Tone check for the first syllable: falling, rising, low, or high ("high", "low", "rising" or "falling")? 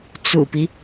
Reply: low